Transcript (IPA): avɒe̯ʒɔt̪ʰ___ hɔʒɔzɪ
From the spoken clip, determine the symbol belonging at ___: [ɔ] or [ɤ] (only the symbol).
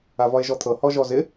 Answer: ɤ